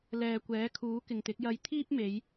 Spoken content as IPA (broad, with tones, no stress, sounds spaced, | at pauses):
l ɛː˨ kʷ ɛː˨˥ kʰ uː˨˥ k ɪ˨ ŋ t̪ ɪ˨˥ k̚ j ɐ˧ j t̪ʰ iː˥ p̚ m e˨˧ j